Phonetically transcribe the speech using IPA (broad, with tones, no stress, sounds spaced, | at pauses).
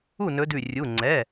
u˥˩ n ɵ˨˦ d ʉ˧˩ rʲ u˩˧˩ ŋ͡ǀ ɛ˩˧˩